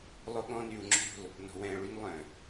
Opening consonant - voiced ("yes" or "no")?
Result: yes